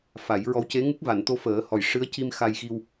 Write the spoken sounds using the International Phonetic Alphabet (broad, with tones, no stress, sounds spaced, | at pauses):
f a˨˩˦ j ɹ ɔ˧˥ w c e˧˥ ŋ ɨ˦˥ k̚ v a˨˩˨ n t̪ o˧ f əː˨˩˦ h ɔ˨˩ j ʂ ɨ˧˥ ə̯ c i˧ m x a˧ j x i˧ w